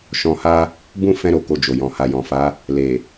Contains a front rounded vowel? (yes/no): no